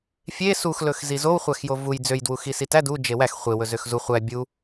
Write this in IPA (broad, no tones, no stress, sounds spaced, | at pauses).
fʲ e s u x l ɵ x z i z o w χʷ æ x j o v u j d͡z ø j d w u x i s i t æ d u d͡ʒ e w æ x χʷ e w ɵ z ø x z u χʷ æ bʲ u